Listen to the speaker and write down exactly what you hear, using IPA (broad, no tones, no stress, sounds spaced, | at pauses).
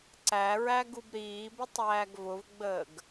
ǀ æ ɹ æ ɡ u b ɾ iː b ə tˤ æː ɡ v ʊ v ɡ͡b əː ɡ